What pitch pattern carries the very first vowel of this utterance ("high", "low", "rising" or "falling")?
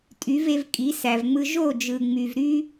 rising